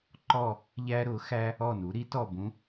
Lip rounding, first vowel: rounded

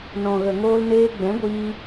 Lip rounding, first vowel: rounded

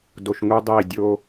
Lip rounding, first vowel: rounded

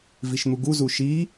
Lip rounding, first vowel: unrounded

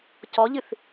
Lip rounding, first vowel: rounded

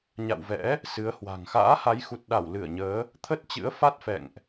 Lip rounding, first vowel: unrounded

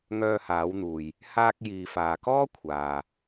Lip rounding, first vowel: rounded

